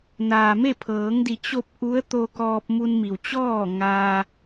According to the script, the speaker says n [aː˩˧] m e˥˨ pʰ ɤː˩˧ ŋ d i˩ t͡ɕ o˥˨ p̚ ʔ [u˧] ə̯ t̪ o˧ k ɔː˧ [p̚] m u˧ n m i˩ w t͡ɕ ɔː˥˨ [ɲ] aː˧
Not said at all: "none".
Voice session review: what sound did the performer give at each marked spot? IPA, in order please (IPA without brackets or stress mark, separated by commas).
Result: aː˩, u˧˥, p̚, ŋ